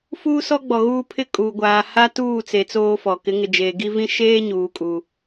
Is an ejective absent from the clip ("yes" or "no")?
no